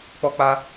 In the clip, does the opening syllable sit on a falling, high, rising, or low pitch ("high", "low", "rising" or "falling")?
high